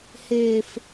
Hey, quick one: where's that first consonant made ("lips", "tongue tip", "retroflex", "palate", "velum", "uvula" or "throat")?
throat